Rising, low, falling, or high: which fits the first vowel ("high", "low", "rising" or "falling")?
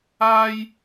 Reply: high